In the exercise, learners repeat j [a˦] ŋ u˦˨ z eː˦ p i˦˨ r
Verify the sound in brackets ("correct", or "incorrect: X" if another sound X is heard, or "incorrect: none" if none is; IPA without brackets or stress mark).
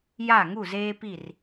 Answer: incorrect: a˦˨